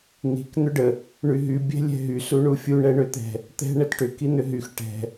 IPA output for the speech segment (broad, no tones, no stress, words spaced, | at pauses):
n̪i̤k n̪ʏɖə | ɳyɦy bʲɛ̤lʲɛ̤ɦy suɳufʲu ɳɛɳøt̪ɛ̤ | t̪ɛ̤ ɳɛtʈʏ kin̪ʏɦyx ʈɛ̤